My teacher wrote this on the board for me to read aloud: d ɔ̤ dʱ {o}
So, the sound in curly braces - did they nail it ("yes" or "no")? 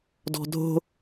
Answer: no